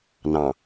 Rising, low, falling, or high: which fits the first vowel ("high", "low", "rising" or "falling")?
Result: low